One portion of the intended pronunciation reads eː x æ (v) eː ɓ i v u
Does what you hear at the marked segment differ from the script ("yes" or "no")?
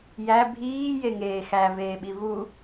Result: no